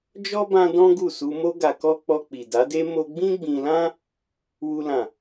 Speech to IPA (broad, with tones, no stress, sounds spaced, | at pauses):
d͡ʒ ɔ˦ b ã˧ d ɔ̃˦ ɡ u˦˨ s u˧ m o˦ ɡ a˧ k ɔ˦ k͡p ɔ˧ k͡p i˨ d a˨˦ d e˦ m o˧ ɡ͡b ĩ˦ ɡ͡b ĩ˧ l ã˦ | w u˦ l ã˦˨